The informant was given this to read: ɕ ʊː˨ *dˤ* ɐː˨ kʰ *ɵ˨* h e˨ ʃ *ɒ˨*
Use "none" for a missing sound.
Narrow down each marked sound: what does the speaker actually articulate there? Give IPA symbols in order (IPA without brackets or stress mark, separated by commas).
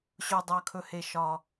dˤ, ɵ˨, ɒ˨